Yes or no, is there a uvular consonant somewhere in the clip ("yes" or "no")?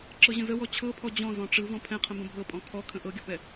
yes